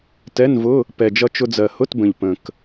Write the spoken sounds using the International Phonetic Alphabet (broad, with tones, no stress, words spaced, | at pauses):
tɛ˧˥˧nvʊ˧˥˧ | pɛ˨˩d͡ʒʌ˧ t͡ʃʊ˧d͡zɜ˨˩hʊ˧˥˧tbə̃˨˩ʎ pə̃˨˩k